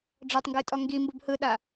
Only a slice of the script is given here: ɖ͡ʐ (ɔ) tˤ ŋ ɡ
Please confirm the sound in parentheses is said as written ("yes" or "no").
yes